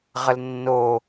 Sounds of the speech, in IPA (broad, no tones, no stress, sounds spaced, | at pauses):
ʁ ə l nː o